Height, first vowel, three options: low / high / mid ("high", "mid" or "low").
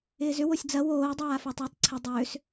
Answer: high